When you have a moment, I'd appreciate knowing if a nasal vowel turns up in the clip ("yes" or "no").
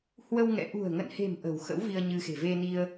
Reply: no